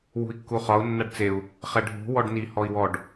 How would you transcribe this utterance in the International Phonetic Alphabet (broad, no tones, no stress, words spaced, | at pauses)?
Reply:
wṳi̯kːuχɒu̯ nːaɖt͡seu̯ | χɛɖʱṳ wɔɖni hɔi̯wɔɖ